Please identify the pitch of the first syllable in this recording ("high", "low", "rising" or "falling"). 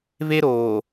high